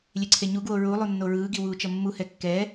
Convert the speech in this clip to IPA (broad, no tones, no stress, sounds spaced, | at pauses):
lʲ e ǀʰ e ɲ u ɡ w o ɹ u lˠ u nː o ɹ ɯː ɡ i w uː t͡ʃ ʌ mː u h ɛ kː ɛ